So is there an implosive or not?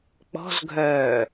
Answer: no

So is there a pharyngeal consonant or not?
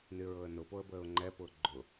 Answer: no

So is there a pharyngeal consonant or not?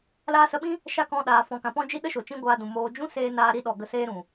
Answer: no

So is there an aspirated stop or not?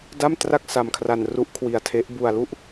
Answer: yes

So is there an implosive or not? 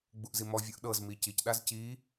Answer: yes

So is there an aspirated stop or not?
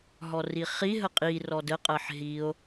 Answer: no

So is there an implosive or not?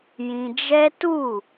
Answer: no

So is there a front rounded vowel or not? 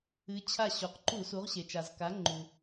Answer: no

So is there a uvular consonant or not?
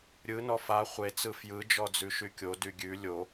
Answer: yes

